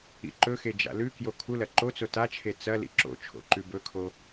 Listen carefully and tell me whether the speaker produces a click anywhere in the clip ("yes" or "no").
yes